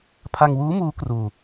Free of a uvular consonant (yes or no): yes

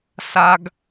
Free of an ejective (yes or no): yes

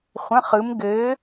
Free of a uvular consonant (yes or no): no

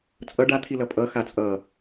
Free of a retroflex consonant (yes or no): no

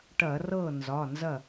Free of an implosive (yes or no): yes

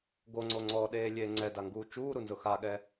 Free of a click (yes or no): no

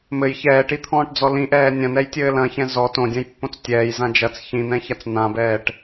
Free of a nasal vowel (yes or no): no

